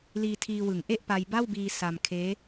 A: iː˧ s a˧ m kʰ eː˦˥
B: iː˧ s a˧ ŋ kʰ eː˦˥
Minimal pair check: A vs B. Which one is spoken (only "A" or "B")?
A